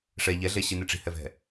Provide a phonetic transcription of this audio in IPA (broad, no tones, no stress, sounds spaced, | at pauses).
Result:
ʂ ɛ ʎ ɛ ɮ e ɕ i n e ʈ͡ʂ i̤ h ɛ v ɛ̤